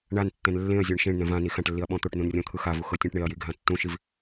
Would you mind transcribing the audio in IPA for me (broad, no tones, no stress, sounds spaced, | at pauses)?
ɳ a n tː ɛ̃ n lː ẽ ɐ̯ zʲ ɔ ɳ ʃ ẽ ɳ n ɛ̃ v ã n i x ã ʈ lː i ɐ̯ ɓ ɔ̃ t̪ o ʈ n ũ n rʲ ɔ̃ t̪ʰ ɯ x a v u x ɤ tʲ ɛ̃ ʈ ɳ e ɐ̯ j i ɡʱ ã tː ũ ʃ i v